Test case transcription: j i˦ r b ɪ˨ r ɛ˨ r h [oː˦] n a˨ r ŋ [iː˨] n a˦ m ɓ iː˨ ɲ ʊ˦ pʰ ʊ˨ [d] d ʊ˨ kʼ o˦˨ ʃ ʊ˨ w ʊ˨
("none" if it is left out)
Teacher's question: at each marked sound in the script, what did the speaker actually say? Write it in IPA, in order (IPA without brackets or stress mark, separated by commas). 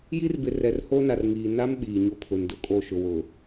o˦, iː˨, n